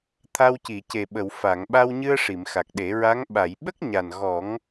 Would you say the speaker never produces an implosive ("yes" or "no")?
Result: no